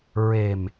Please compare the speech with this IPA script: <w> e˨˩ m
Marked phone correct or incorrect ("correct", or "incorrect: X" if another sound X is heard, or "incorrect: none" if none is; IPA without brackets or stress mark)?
incorrect: ɹ